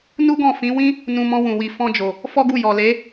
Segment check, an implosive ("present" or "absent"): absent